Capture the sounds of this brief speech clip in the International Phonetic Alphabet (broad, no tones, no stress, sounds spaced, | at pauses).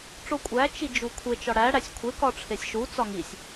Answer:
ʈ͡ʂ o kʷʼ æ t͡ʃ i d͡ʒ u kʷʰ e t͡ʃ ɒ ɽ æ ɽ æ sʲ kʷʰ e k ɒ ʈ͡ʂʰ e sʲ ʃ u t͡s ɒ ŋ i sʲ